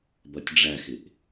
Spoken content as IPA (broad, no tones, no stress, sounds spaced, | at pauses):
b ʌ tʲ ɖ͡ʐ æ x ɪ ʔ